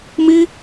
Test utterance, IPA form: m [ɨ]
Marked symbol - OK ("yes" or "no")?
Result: no